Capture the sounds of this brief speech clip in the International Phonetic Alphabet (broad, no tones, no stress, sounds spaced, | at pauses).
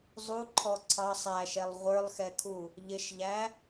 zˤ u ǃʰ ɔ ǀʰ ɑ sˤ æ ʃ ɛ lˠ ʁʷ ə˞ lˠ x ɛ kʰ u | ʎ ɪ ʃ ʎ æ